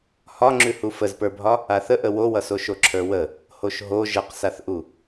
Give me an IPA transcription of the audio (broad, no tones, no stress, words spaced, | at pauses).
hɒŋ͡ǁʉ hufəzpə˞bʱɒ | aθəʔə wowʌso ʃoǁʰə˞wə | hoʃɦo ʒəqsaθʔu